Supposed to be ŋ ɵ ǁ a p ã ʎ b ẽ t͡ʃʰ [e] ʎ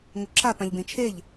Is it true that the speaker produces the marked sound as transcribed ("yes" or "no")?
yes